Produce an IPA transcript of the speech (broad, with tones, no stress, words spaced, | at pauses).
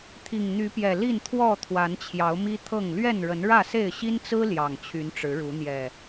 t̪ʰi˨˩ŋn̪y˨˦pjɛ˨˩ li˥˨nt̪ʰwɔ˥˨ t̪ʰwa˨˦nt͡ɕʰjɑ˨˦ʊ̯mi˦ t̪ʰɤ˥˨ŋ lɥɛ˥˨nɻə˨˦nɻä˥˨se˥˨ɪ̯ ɕi˦nt͡sɹ̩˦ ljɑ˨˩ŋt͡ɕʰy˨˦nʈ͡ʂɻ̩˨˦ɻu˨˦ n̪jɛ˨˩